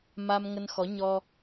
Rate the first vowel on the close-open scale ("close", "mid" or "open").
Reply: open